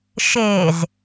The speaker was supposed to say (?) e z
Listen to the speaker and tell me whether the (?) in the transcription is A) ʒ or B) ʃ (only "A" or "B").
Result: B